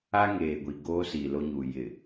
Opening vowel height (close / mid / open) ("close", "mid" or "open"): open